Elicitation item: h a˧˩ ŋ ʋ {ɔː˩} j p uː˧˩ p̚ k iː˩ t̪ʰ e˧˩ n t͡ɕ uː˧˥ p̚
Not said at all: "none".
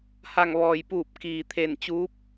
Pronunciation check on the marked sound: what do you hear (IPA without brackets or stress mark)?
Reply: ɔː˩